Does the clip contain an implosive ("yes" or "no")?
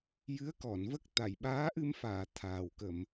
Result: yes